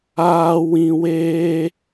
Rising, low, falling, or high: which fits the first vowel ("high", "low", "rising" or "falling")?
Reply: high